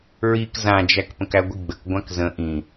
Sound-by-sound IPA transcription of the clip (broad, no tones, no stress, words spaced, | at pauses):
ɹik zãd͡ʒæk pə̃kæɡʷiɡ͡bək ɡʷãkzə̃ ʔĩ